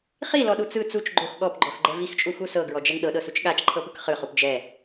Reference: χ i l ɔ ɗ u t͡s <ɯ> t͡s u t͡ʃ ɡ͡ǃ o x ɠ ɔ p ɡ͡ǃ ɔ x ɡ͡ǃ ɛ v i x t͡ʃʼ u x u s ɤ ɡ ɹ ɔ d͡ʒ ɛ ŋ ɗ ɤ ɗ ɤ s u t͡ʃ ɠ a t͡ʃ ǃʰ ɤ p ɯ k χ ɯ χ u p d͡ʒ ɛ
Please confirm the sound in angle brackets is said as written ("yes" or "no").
yes